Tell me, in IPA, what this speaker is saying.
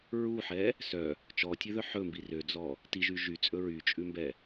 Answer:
ɹuħɛ | sœ | t͡ʃɔtʲʉðœ ħɵmbi rød͡zɔ | tiʒy ʒyt͡sʼɵ ɹyt͡ʃʼʉmbɛ

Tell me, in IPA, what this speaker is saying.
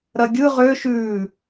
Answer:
ɾɐɡʲɯ ʁø ʃʉː

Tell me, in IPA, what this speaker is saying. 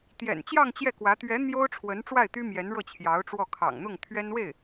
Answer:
t̪jɛ̰˨˩nt͡ɕjɑ˥˧ŋ t͡ɕjɛ˥˩kwä˧˥ t̪ɥɛ˧˥ n̪jo˥ʊ̯ʈ͡ʂʰwə˧˥n ʈ͡ʂwa˥˩ɪ̯t̪y˥mjɛ˧˥n ɻɤ˥˩t͡ɕʰjɑ˧˥ʊ̯ʈ͡ʂwɔ˥˩ kʰɑ̰˨˩ŋn̪ʊ˥˩ŋ t̪ʰɥɛ˥nwe˥˩ɪ̯

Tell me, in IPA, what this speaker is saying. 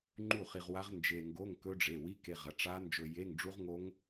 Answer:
ŋ͡ǃu˥˩χi˧ʁwa˦˥ʁ nd͡ʒe˧ŋɡo˧˥˧ŋ kɵ˦˥ɖ͡ʐe˩˧˩wi˧˥˧ ke˧ʁɐ˩˧˩ʈ͡ʂa˦˥ nd͡ʒɵ˧je˧˥˧ŋɖ͡ʐu˦˥ʁŋo˦˥ŋ

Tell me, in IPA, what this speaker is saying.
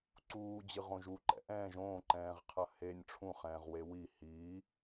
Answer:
ǀuː d͡ʑɨʁõʒu ǃɛ̰ʔɛ̃ːʒ õːǃɛ̃ːʁqʰɐ henʲ ʈ͡ʂʰũχɛ̃ːʁwe wi hiː

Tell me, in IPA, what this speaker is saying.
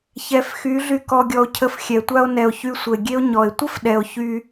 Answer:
çɛ˨˦fxy˨˦ɮy˧ kɔ˨ɡʲɔ˨o̯cʰə˨f xʲɛ˨tʷa˧o̯ nɛ˨o̯ çy˧sʷə˨e̯ɡʲe˦o̯ ɲɔ˨e̯ tʷə˦fɗɛ˨o̯ çy˧

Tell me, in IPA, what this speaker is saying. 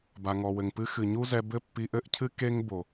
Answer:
ba˨ŋɔ˨wɘ˨ŋpɨ˦ xɨ˨ɲu˦zɛ˧ bɘ˦pːi˧ʔɘ˦ʔcʰɨ˦ ke˦ŋbo˨

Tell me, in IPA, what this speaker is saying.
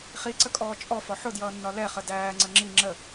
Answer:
χiǀəkʼɔː t͡ʃʼɔfɒ ħʊdjʌːnːɒ lɛχə dæːŋ͡ǀə ŋ͡ǁi ŋ͡ǁə

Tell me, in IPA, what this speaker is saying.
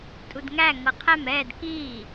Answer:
tʼudŋæ ŋɤqʰæm ɛːd kiː

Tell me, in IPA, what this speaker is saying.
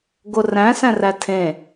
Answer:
ɡoræ̃ sæ̃rætʰẽ

